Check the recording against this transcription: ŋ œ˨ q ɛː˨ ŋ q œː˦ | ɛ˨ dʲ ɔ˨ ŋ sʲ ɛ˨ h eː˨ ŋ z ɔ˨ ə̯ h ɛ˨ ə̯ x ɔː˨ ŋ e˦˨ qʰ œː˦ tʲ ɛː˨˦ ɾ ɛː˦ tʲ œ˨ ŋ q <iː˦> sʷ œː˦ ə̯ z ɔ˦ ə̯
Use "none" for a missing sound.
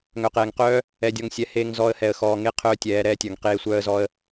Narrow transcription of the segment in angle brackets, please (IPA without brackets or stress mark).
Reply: eː˦